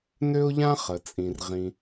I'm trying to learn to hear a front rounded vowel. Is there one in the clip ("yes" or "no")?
yes